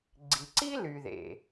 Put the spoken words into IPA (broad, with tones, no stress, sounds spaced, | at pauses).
ɡ͡ǀ i˩ ǀ i˥ l y˩ ð ḛ˩